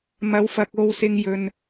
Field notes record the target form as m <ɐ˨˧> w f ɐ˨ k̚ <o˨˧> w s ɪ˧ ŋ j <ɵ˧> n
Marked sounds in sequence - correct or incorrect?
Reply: correct, incorrect: o˧, incorrect: ɵ˨

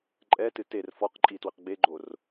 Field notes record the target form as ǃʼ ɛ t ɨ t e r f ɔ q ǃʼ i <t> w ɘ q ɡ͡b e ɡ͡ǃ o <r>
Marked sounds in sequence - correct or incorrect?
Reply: correct, correct

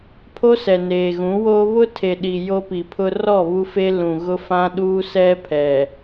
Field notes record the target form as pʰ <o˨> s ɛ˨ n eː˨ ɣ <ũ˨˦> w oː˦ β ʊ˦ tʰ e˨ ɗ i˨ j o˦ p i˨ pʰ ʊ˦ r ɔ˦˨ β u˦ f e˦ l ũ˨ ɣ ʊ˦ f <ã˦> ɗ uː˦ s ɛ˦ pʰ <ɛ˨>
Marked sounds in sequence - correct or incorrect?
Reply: incorrect: o˦, correct, correct, correct

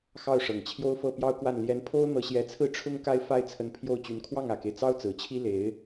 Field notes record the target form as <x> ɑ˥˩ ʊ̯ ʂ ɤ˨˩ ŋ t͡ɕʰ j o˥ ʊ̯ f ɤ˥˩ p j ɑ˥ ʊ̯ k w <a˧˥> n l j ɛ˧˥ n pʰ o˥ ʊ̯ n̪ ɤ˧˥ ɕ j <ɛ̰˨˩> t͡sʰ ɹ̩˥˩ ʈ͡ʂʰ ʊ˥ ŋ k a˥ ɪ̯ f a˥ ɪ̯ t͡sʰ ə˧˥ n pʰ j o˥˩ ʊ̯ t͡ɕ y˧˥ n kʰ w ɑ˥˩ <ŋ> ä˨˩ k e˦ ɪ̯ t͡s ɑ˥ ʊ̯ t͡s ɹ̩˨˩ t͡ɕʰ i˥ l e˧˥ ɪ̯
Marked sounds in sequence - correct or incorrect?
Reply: correct, incorrect: a˥˩, incorrect: ɛ˧˥, correct

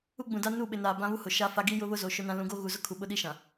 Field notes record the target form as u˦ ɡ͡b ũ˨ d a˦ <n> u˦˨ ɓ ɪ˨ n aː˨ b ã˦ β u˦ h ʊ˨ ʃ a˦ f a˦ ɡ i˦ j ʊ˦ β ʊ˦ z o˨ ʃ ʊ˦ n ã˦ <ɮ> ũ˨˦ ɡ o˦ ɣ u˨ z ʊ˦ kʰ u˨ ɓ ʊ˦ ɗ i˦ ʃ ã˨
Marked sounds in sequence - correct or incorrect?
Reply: correct, incorrect: l

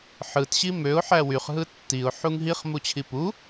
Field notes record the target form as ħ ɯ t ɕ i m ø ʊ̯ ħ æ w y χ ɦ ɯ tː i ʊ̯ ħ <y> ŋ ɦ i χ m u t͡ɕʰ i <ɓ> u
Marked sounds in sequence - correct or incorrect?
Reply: incorrect: u, incorrect: p

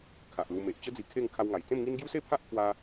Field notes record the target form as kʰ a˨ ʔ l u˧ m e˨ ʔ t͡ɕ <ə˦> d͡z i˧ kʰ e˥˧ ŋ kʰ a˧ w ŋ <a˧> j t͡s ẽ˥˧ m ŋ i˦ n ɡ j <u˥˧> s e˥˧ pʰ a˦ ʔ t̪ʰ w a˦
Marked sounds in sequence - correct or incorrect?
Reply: correct, incorrect: a˨˩, incorrect: u˦

